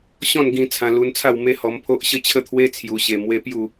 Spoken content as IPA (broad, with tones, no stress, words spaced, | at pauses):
ɕɔ̃˥˧nɡĩ˧ t͡sʰã˧lu˧nt͡sʰa˥˧w me˦hɔ˧mpʰo˦ʔ ɕə˦t͡ɕʰə˥˧t̪ʰwe˦ t͡sʰju˧ɕe˧mwe˦ pju˥˧